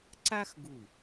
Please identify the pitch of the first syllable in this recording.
high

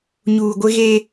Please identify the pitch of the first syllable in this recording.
low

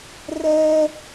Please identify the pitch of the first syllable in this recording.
high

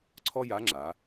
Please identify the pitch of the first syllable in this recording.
high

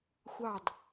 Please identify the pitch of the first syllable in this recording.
falling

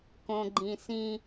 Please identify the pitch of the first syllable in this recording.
low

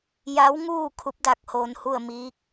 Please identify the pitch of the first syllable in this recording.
rising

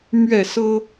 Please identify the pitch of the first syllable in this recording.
falling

